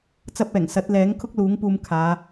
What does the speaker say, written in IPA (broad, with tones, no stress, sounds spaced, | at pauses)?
t͡s ɐ˧ p̚ ɛː˨˩ ŋ s ɐ˨˥ t̚ l ɛː˨˥ ŋ kʰ ʊ˥ k̚ l uː˨˥ ŋ p uː˧ m kʰ aː˨˧